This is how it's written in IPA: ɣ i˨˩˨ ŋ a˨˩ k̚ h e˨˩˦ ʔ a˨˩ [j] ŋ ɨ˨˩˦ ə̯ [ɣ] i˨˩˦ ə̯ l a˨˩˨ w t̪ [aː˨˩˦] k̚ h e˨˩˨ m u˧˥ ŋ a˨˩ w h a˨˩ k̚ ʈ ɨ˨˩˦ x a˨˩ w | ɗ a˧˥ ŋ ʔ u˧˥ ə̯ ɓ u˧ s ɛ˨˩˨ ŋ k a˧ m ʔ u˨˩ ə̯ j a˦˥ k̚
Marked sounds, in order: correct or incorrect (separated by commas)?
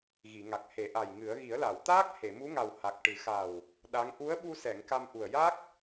correct, correct, incorrect